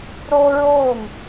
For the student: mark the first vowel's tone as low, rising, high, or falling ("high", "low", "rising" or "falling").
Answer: high